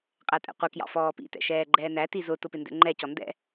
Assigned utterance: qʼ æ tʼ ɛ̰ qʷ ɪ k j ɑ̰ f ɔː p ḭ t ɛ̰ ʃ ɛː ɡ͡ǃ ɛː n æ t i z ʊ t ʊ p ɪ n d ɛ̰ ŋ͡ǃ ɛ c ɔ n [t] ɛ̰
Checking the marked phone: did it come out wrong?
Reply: yes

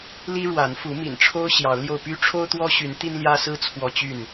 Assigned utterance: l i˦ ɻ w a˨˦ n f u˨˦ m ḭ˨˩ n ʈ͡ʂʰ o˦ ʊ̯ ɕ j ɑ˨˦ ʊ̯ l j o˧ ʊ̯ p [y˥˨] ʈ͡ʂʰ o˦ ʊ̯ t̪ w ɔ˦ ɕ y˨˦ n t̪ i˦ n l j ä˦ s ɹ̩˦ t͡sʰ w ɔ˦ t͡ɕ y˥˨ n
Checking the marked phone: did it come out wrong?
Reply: yes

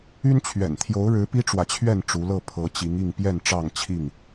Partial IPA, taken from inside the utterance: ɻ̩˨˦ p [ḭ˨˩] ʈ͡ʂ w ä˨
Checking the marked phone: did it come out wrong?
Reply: yes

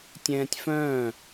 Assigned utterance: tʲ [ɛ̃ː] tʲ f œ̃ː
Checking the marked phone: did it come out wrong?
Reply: no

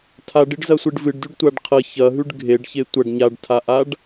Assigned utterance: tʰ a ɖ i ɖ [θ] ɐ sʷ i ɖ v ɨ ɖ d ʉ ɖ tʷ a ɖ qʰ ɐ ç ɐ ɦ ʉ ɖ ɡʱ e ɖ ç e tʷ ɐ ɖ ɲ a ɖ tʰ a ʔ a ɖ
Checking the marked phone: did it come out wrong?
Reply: yes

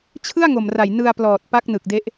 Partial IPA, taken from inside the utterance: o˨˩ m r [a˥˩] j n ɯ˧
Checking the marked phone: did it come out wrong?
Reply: yes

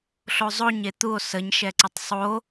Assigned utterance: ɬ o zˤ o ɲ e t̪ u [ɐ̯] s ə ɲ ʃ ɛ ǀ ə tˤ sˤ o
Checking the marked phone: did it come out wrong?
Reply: yes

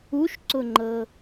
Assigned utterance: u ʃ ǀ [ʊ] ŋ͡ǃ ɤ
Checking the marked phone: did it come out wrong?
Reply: no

